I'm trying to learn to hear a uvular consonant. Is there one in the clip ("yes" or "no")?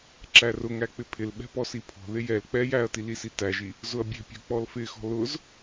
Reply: no